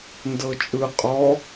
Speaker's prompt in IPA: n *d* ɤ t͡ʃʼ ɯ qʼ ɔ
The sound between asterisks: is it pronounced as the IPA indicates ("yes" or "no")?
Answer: yes